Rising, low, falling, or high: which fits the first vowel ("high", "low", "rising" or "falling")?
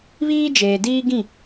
high